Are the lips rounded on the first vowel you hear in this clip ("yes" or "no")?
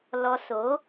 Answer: yes